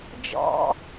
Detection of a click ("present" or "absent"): absent